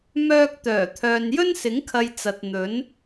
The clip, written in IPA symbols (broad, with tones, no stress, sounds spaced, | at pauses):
m œː˧ k̚ t̪ œː˨˩ t̪ʰ œː˨ n j ɵ˥ n s ɪ˨˥ ŋ kʰ ɐ˨ j t͡s ɐ˨ t̚ n̪ ɵ˨˥ n